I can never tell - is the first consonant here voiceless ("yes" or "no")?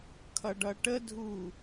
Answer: yes